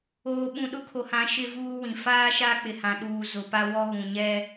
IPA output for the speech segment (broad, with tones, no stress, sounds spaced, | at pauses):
oː˨ ɓ ũ˨ ɗ ʊ˦ kʰ o˨ h ã˨˦ ʃ ɪ˦ v uː˦ w ĩ˨ f aː˦ ʃ a˦ k͡p ɪ˨ h ã˨ ɗ uː˨ z ʊ˨ p a˦ w ɔ˦ ɣ ũ˨ ɲ ɛ˦